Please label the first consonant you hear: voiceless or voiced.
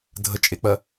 voiced